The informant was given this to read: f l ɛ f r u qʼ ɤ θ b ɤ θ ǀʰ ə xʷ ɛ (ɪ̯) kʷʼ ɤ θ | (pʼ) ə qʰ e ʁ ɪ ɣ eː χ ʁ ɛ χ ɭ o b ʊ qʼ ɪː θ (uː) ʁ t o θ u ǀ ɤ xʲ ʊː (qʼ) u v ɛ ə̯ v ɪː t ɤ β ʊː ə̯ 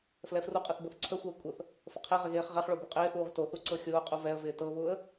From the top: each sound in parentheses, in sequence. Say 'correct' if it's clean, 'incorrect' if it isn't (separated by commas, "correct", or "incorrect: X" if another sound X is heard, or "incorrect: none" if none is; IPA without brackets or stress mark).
incorrect: ə̯, incorrect: f, correct, correct